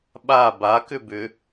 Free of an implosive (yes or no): no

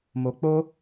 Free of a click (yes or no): yes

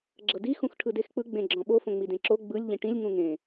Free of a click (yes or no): no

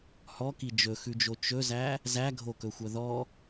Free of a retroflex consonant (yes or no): yes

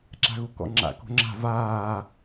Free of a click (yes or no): no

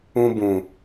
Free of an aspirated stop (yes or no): yes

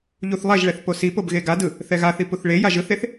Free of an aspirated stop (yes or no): yes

